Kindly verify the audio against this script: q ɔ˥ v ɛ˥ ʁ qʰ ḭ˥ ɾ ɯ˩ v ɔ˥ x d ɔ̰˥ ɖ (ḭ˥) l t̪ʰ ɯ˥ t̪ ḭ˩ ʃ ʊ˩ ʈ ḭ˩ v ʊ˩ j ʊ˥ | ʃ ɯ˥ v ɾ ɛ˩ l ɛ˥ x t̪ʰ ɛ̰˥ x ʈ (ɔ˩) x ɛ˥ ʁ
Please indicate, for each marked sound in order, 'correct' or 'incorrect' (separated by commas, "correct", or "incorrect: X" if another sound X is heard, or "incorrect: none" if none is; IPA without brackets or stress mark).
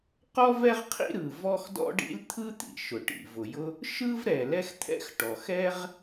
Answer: correct, correct